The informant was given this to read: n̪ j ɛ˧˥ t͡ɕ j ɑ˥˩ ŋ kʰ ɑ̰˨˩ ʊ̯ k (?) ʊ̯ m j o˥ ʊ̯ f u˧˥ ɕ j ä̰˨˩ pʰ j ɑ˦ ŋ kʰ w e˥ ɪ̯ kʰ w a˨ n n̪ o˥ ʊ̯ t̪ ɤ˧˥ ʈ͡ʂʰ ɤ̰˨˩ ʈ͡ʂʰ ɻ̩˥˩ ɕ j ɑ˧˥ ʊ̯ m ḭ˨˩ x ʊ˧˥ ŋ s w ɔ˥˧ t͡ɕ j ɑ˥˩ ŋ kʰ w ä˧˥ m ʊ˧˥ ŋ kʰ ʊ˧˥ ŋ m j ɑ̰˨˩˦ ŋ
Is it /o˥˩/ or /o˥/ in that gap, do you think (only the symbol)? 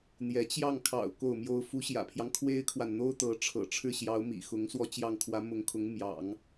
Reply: o˥˩